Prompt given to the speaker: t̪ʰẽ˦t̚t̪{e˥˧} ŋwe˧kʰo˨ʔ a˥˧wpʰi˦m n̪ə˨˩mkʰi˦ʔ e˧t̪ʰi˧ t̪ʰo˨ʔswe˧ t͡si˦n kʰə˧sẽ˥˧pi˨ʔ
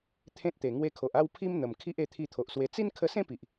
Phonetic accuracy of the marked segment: incorrect: e˨˩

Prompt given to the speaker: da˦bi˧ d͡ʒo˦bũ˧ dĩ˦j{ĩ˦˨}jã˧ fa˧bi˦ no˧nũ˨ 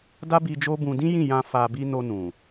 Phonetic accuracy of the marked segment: correct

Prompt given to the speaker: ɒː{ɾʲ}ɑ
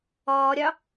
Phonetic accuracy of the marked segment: correct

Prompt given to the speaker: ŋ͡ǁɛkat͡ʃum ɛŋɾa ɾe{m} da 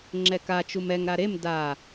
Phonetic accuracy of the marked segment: correct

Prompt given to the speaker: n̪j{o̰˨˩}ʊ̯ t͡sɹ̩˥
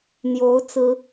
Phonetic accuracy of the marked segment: incorrect: o˧˥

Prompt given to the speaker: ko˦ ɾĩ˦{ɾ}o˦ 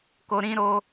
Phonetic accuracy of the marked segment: correct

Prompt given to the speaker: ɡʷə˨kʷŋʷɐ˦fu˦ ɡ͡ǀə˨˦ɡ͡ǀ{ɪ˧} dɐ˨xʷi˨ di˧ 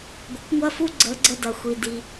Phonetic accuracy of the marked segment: incorrect: ə˧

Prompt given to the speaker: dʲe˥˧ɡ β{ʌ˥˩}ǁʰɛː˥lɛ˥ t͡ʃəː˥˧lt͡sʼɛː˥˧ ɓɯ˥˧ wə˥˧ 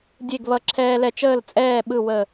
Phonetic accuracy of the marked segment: incorrect: ʌ˥˧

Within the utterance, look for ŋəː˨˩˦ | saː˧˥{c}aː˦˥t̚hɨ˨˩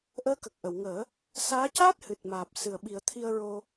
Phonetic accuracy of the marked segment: correct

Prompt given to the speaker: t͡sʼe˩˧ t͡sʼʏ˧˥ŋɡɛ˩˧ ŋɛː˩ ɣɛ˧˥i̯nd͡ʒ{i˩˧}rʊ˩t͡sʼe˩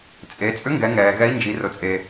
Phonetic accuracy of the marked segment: correct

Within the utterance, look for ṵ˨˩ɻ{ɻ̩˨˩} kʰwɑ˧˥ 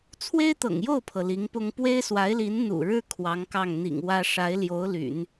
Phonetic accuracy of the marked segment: incorrect: ɻ̩˥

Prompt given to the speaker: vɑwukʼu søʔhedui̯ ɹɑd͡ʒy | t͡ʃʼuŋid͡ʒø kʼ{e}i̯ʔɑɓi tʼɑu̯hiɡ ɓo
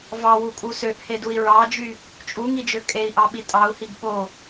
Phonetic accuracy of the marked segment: correct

